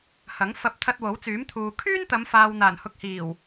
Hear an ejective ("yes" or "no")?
no